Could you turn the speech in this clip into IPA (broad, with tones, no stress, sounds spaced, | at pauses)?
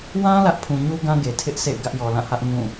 w ã˦ l ä˦ ʔ pʰ ũ˨ ɲ u˦ ɡ ã˦ ɡ e˨ tʰ ɪ˦ ʔ s ḛ˦˨ ɪ̯ ɡ ä˦ ʔ j ɔ˨ l ã˦˨ h ä˦ ʔ ŋ ũ˦˨